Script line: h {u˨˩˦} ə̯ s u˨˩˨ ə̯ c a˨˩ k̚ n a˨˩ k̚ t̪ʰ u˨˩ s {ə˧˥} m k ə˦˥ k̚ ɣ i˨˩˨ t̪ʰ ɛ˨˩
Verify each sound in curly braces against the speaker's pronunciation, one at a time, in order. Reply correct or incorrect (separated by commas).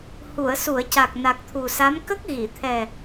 incorrect, incorrect